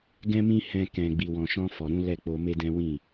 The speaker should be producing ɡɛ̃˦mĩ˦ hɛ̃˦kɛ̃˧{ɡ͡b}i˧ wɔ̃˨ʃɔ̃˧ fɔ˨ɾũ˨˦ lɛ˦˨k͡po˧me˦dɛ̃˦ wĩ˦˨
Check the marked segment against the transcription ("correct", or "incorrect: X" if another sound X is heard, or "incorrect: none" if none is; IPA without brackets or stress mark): correct